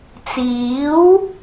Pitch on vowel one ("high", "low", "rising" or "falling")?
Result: rising